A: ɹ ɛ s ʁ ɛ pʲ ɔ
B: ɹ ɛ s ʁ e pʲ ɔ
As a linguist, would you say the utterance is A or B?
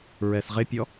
B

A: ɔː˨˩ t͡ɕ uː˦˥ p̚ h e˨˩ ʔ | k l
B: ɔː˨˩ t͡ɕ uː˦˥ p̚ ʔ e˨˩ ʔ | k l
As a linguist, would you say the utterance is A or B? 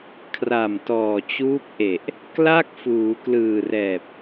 B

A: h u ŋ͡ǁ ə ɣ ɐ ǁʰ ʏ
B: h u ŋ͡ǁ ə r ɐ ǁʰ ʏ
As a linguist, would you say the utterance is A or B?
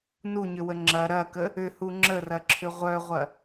B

